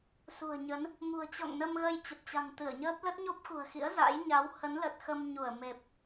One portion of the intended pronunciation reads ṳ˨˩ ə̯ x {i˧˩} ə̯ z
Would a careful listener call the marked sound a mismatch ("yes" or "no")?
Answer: yes